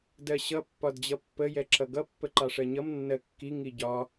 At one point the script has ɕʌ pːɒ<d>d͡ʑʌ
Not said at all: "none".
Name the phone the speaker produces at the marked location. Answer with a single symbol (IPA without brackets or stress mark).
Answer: d